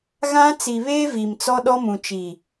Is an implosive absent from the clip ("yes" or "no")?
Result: no